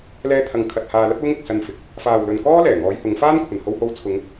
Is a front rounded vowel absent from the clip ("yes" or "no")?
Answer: yes